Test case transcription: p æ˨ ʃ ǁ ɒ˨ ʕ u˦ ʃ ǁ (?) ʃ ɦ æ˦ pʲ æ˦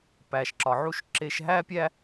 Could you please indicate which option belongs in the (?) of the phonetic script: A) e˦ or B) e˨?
A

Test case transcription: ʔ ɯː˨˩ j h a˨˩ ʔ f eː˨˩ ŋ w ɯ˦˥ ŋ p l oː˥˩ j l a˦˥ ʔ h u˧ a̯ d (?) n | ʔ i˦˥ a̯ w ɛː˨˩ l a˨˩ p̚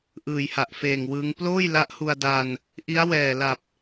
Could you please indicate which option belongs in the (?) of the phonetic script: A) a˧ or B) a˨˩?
A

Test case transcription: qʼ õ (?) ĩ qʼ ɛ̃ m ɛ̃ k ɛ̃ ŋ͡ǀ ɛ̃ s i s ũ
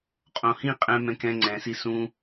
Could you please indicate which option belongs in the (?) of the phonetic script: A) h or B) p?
A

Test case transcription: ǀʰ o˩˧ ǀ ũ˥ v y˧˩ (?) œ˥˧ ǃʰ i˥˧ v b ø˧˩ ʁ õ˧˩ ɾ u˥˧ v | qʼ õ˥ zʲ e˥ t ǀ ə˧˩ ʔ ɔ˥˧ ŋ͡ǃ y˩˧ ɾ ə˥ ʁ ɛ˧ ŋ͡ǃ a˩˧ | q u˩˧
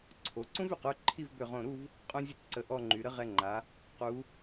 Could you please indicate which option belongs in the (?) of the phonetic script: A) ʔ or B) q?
B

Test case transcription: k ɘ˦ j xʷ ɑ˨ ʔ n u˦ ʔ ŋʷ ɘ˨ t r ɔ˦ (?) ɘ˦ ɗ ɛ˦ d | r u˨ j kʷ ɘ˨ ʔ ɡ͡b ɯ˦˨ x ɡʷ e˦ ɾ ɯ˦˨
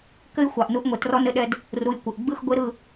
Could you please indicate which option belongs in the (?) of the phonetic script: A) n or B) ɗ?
A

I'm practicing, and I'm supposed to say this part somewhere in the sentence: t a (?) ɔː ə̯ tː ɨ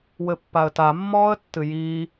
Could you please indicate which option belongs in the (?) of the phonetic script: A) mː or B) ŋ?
A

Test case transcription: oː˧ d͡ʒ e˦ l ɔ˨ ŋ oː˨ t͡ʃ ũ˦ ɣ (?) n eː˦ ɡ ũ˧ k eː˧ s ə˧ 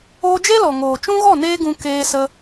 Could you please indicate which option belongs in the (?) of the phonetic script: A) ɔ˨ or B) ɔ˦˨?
B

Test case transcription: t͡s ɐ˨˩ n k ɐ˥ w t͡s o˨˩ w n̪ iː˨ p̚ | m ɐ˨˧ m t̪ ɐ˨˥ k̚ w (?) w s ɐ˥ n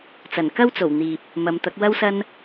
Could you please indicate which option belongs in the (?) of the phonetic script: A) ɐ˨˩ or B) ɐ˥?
B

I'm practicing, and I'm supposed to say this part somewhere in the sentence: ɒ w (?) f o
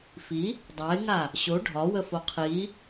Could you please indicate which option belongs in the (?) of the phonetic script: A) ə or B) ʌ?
A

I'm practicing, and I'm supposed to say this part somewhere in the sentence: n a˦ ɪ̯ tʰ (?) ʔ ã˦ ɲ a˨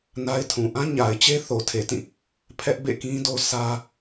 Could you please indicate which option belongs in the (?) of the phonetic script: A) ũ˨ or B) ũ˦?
A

